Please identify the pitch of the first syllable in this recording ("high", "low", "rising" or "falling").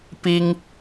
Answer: high